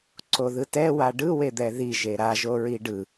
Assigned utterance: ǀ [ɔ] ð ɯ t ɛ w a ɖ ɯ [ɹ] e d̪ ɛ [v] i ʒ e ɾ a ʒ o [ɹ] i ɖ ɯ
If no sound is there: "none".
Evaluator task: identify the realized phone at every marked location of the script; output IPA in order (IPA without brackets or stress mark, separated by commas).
o, w, ð, ɹ